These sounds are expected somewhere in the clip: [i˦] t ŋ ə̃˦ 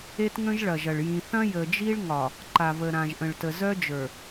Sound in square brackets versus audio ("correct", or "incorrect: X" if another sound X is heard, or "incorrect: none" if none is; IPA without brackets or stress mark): incorrect: e˦